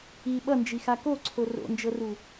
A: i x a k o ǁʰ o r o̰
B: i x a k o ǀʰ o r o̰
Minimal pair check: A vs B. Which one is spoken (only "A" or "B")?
B